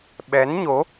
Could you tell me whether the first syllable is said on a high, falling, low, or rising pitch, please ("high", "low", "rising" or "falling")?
rising